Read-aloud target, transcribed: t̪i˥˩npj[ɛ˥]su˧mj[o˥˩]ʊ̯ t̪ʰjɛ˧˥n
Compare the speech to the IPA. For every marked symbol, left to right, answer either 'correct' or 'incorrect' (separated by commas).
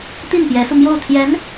incorrect, correct